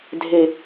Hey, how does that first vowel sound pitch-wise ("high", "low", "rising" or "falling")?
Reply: high